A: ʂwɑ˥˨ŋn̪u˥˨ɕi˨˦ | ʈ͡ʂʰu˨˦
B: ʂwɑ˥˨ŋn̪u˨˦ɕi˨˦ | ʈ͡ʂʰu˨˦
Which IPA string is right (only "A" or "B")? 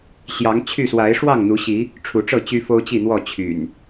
B